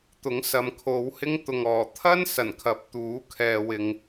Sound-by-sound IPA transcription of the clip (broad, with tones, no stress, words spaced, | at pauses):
t̪ʊ˨˥ŋsɐ˨mkʰo˨˧whɪ˥ŋ t̪ʊ˨ŋɔː˨˩ t̪ʰɐ˥n sɐ˨˩nkʰɐ˨˥p̚t̪uː˨˥ kʰɛː˨ wɪ˧ŋ